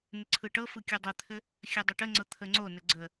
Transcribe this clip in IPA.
n ɘ ǀʰ ɯ ʈ ɤ f ɯ kʲ u dˤ ə t̪ʰ ɘ | xʲ ɘ dˤ ə ʈ ə ŋ͡ǀ ɤ t̪ʰ ə ŋ͡ǀ o n ɘ ɡ͡ǀ ə

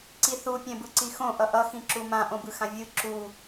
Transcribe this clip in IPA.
ǀ i θ u pʲ ɛ̃ b ɯ ǀ i x õ ʔ ʌ ʔ ʌ x ĩ ǁ u m ã ʔ õ b ɯ x ã vʲ ɯ ǁ u

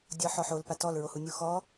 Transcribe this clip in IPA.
dʲ ɔ ħ ɔ ħ o l p a t ɔ l ɹ o h u nʲ u x ɔ

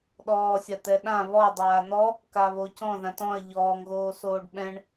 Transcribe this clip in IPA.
ɗ ɔː sʲ a t̪ ɛ ɗ ã β ɔ dˤ aː n̪ ɔ | k a β o c ɔ̃ ð ã t ɔ̃ ɐ̯ ʎ ɔː ŋ ɣ oː s oː ɖ ɓ ɛ̃ ɳ

